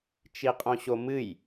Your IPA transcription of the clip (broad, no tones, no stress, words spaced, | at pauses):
t͡ʃiqʼõɕomɨj